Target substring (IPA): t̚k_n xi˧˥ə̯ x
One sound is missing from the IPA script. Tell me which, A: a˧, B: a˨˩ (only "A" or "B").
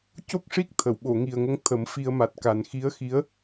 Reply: B